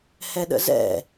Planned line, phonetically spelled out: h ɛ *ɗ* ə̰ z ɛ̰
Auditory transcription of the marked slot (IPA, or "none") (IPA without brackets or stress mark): ɗ